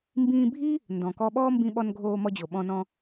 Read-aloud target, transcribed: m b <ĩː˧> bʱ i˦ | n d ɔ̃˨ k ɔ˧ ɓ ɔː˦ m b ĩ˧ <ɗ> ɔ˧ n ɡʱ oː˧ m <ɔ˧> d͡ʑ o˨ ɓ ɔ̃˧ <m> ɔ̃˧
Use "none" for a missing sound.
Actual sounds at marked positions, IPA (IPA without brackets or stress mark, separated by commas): ĩː˧, ɓ, ɔ˧, n